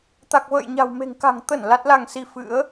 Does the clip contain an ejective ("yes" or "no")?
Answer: no